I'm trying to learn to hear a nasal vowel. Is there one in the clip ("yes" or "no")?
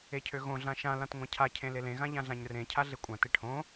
yes